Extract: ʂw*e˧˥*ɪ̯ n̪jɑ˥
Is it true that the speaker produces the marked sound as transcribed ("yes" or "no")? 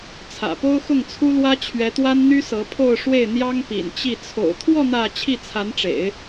no